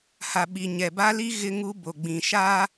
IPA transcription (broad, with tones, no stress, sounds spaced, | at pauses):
h a˨ ɓ i˨ ɲ ɛ˨ b a˦ l i˦ ɣ ɪ˦ ŋ u˦ b o˨ ɡ͡b ĩ˨ ʃ a˦